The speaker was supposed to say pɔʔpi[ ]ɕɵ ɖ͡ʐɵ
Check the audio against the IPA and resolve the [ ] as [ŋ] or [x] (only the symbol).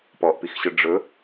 x